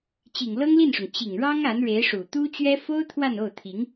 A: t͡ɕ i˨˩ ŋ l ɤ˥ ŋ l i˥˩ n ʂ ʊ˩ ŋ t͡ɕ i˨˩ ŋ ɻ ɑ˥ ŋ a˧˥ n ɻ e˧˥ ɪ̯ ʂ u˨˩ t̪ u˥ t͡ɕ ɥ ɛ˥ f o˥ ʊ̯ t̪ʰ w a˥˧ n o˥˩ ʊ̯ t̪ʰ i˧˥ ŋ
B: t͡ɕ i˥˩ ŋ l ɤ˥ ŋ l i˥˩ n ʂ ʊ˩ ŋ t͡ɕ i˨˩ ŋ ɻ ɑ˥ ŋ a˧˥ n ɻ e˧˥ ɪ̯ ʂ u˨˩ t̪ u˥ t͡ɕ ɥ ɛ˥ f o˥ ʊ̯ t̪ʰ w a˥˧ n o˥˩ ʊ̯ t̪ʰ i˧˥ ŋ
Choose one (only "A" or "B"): A